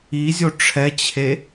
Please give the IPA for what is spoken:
i zʲ o ʈ͡ʂʰ ɛ t͡ɕʰ e

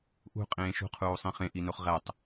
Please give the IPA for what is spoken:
ʔ ṳ qʼ ẽː ʃ ṳ qʰ uː sˤ ĩ χ ẽ ʔ i n o χ ʁ æ tˤ

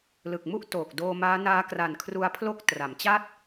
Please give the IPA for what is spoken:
l ɯ˨˩ k̚ m u˥˩ ʔ t oː˨˩ k̚ d oː˧ m aː˦˥ n aː˦˥ k r a˨˩ n kʰ r u˧ a̯ pʰ l o˦˥ k̚ t r a˩˦ m t͡ɕ a˥˩ t̚

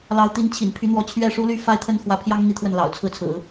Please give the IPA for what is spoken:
l ɑ˧˥ ʊ̯ t̪ i˧˥ n t͡ɕʰ ḭ˨˩ n pʰ y˧˥ n̪ w ɔ˧˥ t͡ɕʰ ɥ ɛ˥˩ ʂ u˥ l y˥˧ f a˥˧ ɪ̯ t̪ʰ ə˥˩ n x w ä˧˥ pʰ j ɑ˥ ŋ n̪ i˧˥ t̪ʰ w ə˥˩ n l ɑ̰˨˩ ʊ̯ t͡sʰ ɹ̩˥˩ t͡sʰ ɹ̩˨˩˦

